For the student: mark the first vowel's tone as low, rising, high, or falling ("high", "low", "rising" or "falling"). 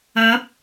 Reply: rising